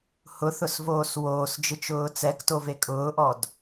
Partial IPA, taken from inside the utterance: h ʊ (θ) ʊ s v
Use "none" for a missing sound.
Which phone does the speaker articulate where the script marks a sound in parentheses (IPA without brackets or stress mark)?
θ